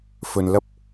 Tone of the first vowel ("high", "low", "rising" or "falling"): low